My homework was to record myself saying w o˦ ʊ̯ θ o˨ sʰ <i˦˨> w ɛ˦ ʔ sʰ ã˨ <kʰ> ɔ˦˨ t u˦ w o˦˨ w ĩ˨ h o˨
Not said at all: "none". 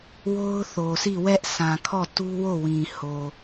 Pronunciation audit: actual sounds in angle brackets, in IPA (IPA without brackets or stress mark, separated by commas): i˦˨, kʰ